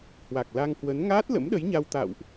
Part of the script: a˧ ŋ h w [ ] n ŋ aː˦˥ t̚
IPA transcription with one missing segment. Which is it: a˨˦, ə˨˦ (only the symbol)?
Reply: ə˨˦